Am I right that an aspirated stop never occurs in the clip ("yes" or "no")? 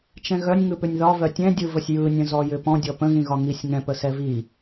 yes